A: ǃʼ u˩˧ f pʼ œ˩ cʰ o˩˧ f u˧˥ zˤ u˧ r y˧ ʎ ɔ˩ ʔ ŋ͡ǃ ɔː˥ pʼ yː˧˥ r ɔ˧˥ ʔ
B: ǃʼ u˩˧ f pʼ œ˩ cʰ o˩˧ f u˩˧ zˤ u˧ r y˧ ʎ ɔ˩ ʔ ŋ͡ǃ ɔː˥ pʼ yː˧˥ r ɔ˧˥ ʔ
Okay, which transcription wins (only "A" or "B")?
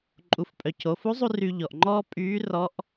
A